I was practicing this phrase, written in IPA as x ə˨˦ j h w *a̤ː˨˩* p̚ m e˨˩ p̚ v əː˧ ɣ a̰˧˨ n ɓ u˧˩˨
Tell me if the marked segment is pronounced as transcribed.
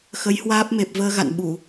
no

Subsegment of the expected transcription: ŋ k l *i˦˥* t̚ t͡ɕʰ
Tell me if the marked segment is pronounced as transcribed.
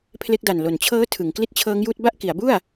yes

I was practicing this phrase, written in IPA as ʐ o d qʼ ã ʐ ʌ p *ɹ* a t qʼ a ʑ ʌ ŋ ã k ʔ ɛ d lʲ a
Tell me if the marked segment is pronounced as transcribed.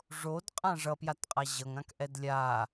no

